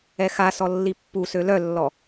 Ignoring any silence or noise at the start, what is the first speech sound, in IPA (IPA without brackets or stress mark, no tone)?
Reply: ɛ